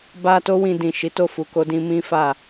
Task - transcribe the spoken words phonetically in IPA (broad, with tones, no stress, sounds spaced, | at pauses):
b a˧ t o˦ w ĩ˧ d ĩ˨ ʃ i˨˦ t o˦˨ f u˨ k o˧ d ĩ˧ m ĩ˦ f a˦˨